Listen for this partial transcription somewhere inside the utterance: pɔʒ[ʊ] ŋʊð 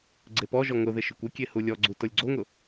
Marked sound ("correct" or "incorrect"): incorrect